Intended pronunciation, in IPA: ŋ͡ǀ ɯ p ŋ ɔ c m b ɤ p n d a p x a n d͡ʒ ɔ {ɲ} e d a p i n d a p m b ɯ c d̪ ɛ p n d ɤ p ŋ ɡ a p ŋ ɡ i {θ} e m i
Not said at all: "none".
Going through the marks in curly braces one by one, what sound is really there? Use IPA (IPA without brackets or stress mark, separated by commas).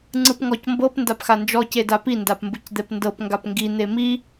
c, n̪